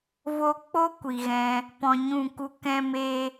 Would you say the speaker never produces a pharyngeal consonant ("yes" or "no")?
yes